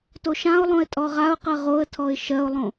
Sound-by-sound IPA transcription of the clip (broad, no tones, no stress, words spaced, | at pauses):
toʃãʊ̯lˠõɪ̯ tʼɔʁaʊ̯qɜ ʁoə̯tʰɔɪ̯ ʃɜʊ̯lˠõ